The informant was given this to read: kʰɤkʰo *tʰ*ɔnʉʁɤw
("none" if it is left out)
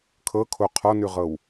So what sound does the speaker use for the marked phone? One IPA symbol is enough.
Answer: qʰ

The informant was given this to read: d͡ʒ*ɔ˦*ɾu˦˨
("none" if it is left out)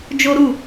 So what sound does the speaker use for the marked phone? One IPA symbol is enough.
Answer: o˦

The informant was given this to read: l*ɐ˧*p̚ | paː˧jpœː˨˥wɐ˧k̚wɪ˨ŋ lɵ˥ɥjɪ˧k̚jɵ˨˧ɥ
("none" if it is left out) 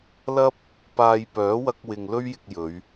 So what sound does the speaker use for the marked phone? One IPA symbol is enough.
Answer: ɐ˥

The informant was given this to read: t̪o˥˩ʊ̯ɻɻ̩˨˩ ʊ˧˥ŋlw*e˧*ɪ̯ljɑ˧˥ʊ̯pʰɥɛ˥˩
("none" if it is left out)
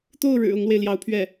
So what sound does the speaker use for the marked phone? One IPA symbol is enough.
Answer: e˧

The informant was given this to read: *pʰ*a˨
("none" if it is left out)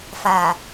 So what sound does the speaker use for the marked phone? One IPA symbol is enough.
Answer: f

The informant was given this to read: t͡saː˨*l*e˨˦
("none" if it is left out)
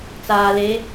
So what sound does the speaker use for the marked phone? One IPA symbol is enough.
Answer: l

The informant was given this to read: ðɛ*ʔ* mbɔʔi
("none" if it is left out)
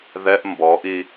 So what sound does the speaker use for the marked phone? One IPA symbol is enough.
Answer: ʔ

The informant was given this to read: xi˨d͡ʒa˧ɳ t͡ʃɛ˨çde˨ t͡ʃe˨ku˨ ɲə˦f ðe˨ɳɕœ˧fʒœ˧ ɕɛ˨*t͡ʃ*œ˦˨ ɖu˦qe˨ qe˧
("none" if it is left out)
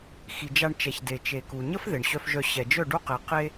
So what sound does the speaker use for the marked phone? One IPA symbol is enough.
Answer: d͡ʒ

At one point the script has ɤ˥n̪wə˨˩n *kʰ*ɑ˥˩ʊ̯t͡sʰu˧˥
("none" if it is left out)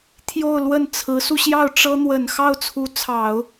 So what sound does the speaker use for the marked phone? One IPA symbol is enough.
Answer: x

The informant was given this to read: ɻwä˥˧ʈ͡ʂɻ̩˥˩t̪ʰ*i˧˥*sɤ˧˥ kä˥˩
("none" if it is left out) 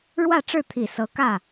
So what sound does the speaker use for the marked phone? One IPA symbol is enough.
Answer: i˨˩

